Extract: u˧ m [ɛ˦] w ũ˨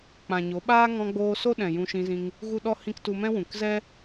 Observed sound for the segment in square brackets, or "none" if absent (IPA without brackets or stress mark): ɛ̃˦